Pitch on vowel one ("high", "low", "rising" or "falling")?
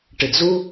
low